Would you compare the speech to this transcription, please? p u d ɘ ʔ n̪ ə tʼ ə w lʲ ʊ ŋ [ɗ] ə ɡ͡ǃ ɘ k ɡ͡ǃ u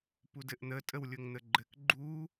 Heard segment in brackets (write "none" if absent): n̪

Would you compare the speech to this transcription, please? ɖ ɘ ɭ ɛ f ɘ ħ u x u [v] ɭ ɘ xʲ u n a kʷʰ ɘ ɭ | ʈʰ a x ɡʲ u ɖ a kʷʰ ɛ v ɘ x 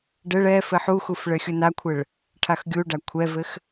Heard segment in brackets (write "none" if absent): f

